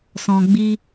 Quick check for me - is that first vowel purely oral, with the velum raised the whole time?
no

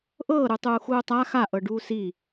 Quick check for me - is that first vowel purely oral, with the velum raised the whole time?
yes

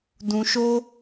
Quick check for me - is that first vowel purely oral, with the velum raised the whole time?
no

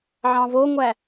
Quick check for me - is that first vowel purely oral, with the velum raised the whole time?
no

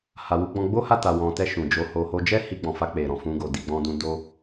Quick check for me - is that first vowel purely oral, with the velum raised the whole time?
yes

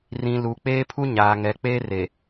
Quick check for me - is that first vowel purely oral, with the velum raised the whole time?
no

